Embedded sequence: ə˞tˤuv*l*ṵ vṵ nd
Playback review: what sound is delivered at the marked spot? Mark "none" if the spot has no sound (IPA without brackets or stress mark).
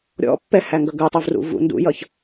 r